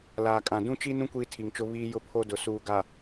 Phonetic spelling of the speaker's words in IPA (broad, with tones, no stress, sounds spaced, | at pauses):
l aː˨ kʼ ã˨ d ũ˦ t͡ʃ i˦ n ũ˦ kʷ iː˦ tʰ i˨ ŋ t͡ʃ ʊ˦ β iː˦ j ʊ˦ pʰ o˦ d ʊ˨ s uː˨ ɡ a˨